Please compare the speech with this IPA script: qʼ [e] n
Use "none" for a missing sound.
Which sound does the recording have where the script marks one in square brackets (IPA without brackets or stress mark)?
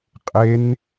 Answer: e